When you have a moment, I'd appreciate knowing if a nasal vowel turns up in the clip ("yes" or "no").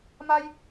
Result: no